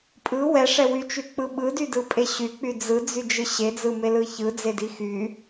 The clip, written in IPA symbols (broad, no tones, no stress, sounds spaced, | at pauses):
pʼ ɯ w ɛ ʂ ɛ w y t͡ʃ y k͡p ɯ ɓ ɯ d y d ɯ pʼ e ɕ y k͡p y d͡z ɯ d͡z y d͡ʒ ɯ ɕ e d͡z ɯ m e l ɯ ç ɯ d͡z e d i x y